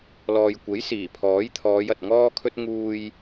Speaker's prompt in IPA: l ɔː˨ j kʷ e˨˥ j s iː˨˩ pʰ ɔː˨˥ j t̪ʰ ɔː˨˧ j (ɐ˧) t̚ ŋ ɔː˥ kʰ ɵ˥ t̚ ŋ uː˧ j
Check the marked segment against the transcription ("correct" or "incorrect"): incorrect